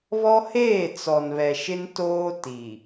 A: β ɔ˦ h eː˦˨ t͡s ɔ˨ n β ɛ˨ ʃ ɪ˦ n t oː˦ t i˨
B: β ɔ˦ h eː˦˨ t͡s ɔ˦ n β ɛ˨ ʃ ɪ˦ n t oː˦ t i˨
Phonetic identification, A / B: A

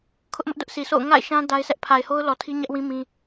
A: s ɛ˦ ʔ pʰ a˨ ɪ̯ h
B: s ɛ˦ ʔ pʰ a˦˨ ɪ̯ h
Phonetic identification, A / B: A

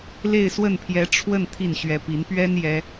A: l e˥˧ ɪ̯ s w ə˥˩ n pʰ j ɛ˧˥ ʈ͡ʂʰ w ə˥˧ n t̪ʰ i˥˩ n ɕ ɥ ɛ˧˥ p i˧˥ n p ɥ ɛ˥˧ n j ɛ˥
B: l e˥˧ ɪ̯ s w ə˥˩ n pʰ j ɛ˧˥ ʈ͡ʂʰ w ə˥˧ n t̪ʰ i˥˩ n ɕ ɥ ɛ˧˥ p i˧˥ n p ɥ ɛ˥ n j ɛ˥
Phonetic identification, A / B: B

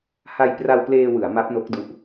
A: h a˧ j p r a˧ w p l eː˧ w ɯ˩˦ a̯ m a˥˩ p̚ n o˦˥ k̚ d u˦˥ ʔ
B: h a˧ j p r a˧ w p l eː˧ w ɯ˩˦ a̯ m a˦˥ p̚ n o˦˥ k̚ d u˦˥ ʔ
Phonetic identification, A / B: B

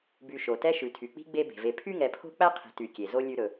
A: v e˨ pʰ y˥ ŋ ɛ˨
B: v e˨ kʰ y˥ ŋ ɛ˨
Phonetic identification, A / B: A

